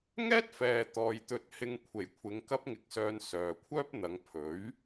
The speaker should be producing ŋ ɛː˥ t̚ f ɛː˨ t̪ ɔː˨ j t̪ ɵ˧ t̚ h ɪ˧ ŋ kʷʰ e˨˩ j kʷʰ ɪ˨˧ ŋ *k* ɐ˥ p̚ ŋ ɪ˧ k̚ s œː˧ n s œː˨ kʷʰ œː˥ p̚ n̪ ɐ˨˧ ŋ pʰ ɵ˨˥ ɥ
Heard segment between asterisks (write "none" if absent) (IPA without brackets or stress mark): k